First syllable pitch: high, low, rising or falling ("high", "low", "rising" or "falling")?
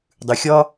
low